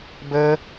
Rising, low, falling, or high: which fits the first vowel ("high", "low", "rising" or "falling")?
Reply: high